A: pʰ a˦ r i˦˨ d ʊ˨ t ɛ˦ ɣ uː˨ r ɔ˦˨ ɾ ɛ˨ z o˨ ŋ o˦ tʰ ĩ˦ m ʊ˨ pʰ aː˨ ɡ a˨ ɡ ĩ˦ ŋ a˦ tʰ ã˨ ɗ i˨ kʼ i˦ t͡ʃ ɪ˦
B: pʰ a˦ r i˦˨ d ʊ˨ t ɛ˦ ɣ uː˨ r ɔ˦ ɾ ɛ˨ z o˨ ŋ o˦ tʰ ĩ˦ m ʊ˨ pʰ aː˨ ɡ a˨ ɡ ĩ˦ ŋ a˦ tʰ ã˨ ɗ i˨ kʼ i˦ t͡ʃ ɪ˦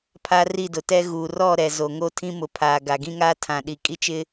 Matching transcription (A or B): A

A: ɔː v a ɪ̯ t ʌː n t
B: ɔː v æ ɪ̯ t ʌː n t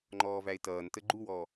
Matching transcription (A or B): B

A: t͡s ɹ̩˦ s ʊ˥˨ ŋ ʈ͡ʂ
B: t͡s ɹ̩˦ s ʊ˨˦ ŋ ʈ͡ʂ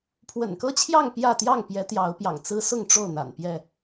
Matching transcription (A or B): A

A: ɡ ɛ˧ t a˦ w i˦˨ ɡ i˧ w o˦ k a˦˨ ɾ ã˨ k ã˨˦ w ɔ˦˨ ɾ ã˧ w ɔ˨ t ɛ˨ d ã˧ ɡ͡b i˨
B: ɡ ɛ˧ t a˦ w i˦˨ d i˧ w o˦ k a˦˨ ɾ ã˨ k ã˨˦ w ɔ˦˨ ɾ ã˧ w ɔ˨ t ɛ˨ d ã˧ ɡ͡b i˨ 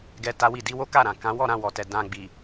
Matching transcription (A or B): B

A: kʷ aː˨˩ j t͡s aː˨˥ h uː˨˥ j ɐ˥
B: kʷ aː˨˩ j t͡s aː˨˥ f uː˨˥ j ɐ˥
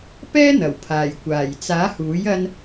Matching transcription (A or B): A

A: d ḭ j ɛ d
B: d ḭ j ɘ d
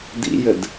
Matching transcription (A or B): B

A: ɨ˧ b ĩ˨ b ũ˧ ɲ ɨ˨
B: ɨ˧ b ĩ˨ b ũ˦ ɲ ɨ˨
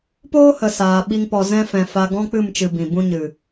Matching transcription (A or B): A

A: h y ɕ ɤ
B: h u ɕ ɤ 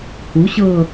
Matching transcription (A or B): B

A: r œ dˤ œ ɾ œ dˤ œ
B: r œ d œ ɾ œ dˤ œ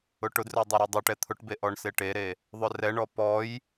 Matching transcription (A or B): A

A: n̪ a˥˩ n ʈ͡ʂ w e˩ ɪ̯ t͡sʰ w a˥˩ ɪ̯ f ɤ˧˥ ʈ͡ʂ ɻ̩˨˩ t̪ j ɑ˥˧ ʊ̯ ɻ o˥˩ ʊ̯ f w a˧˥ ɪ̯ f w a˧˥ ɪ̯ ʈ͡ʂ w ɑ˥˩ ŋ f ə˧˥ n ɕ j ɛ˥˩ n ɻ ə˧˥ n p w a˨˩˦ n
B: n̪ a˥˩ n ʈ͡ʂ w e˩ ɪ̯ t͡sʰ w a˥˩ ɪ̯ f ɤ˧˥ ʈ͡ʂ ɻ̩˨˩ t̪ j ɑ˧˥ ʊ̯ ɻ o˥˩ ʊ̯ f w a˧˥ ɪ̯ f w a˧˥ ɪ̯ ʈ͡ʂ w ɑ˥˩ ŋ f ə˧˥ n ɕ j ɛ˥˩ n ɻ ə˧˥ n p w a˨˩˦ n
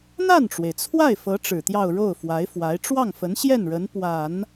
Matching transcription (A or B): A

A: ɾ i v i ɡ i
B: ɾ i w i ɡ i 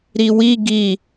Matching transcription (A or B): B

